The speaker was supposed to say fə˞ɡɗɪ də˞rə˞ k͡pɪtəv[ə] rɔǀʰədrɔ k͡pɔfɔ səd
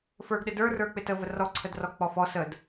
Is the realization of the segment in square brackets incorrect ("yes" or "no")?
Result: no